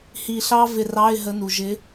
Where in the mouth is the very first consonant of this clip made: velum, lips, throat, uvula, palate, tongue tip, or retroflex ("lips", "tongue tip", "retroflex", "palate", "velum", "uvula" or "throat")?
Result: throat